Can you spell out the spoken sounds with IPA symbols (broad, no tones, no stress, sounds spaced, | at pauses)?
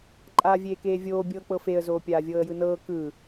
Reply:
ǃʼ aː vʲ eː k eː vʲ oː bʲ ɤː k͡p ɤ f e ə̯ z oː pʲ aː vʲ ɤː ə̯ j ɯ n ɤː k ɯ